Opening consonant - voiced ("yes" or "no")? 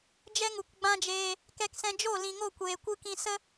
yes